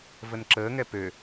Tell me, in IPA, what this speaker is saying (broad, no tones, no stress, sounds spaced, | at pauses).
v ə n ǁ əː ŋ ɛ p ø